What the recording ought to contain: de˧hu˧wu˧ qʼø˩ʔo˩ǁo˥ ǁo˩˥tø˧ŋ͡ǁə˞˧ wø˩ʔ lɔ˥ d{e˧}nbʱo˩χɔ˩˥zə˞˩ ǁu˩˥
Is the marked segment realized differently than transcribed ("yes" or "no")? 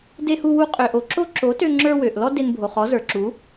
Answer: no